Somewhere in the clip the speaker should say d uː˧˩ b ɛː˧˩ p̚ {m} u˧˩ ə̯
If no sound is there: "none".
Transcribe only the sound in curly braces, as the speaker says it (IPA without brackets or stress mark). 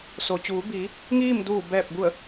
b